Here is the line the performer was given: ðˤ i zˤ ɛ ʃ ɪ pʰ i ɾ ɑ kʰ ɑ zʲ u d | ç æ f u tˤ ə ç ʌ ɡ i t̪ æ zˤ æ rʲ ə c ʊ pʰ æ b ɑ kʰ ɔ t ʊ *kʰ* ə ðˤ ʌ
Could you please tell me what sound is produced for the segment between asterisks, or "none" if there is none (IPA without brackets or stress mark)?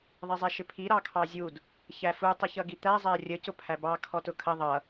kʰ